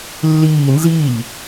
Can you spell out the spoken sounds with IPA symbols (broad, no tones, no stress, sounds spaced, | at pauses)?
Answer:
lː iː n z i ʎ